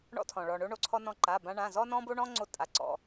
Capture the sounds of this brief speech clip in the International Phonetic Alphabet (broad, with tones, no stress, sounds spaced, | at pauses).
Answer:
ɳ ɔ̰˧ tʰ ɔ̃˩ ɭ ɔ˩ ɳ o˧ ɳ o˩˧˩ ǀʰ ɔ˧ n ɔ̃˧ ǃ a˩˧˩ b ã˧ ɳ ã˩˧˩ z ɔ˧ n ɔ̃˧ b o˧ ɳ ɔ̃˧ ŋ͡ǀ o˧ tʼ a˩˧˩ ǀ ɔ̰˩˧˩